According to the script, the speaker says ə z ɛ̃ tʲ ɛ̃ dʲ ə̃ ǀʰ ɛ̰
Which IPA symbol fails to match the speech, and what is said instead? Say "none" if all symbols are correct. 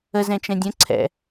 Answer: tʲ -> t͡ʃ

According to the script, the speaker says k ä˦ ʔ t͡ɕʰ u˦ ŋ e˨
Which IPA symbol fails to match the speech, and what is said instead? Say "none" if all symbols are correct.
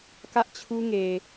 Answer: none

